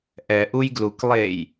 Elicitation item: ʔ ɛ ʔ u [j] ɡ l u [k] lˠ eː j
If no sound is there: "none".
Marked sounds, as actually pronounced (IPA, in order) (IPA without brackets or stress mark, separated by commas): j, k